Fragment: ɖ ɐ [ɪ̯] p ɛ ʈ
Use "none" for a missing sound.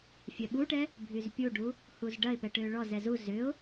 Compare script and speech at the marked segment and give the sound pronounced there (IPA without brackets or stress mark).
ɪ̯